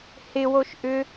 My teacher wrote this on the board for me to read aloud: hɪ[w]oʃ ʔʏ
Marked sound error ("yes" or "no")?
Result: no